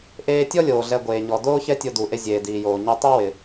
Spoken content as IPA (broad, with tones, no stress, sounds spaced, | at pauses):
ʔ eː˧ tʲ ɔ˥ lʲ oː˩ ɮ ɛ˧ ɡʷ eː˩ ɲ ɔ˩ d oː˥ ç ɛ˥ tʲ o˧ d u˩ ʔ e˧ zʲ eː˩ d iː˩ j oː˩ ɲ ɛ˧ tˤ u˥ w ɪ˩